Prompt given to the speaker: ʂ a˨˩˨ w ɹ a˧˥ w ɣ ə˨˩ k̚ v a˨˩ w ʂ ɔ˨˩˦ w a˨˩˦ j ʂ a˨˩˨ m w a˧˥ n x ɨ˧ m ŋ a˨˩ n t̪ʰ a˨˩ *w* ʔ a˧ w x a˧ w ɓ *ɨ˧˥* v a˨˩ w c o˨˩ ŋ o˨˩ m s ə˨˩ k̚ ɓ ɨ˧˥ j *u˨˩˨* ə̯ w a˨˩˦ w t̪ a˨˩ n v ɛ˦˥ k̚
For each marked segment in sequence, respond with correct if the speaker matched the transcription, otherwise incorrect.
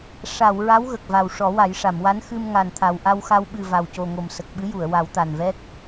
correct, incorrect: ɨ˨˩, correct

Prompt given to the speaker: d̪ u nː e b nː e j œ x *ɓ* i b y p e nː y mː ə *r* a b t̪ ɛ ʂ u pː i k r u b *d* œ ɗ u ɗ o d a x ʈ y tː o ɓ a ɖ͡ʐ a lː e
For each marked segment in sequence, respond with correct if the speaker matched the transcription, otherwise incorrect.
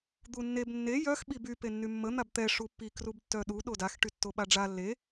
correct, incorrect: n̪, incorrect: tː

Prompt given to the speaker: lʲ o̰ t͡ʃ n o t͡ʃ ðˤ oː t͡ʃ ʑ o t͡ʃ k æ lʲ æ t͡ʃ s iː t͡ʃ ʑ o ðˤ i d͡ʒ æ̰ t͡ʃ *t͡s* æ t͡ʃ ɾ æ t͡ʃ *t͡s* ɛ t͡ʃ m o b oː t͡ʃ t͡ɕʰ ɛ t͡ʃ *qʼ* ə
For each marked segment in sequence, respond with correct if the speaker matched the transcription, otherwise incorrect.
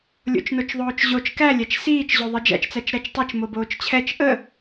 correct, incorrect: tˤ, incorrect: ʔ

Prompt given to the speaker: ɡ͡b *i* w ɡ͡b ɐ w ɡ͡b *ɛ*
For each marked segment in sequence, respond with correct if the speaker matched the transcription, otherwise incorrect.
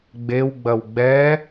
incorrect: e, correct

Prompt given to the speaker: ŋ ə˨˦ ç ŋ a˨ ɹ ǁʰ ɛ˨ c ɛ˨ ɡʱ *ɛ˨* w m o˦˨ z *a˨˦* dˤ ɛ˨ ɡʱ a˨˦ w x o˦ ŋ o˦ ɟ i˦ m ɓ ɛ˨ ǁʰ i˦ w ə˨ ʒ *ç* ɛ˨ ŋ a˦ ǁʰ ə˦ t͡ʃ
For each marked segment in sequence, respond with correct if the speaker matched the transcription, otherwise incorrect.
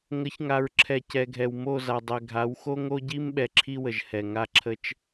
correct, incorrect: a˨, incorrect: h

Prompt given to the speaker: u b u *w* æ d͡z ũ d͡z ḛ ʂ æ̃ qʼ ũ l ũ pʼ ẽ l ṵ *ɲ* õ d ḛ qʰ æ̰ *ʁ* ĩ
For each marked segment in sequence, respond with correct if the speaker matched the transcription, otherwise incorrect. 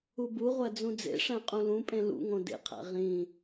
incorrect: ʁʷ, incorrect: ŋ, correct

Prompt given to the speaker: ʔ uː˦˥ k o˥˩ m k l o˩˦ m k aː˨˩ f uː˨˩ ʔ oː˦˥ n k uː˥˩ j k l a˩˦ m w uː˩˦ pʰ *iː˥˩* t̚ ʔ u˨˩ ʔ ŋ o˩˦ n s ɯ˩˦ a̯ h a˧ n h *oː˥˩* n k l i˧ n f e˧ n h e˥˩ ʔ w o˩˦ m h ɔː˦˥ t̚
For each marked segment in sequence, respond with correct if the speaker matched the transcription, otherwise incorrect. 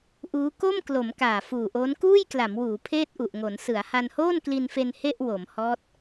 incorrect: eː˥˩, correct

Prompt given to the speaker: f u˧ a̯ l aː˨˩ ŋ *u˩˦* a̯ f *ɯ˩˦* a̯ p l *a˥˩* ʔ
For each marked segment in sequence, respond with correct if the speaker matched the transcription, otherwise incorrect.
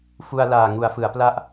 correct, correct, correct

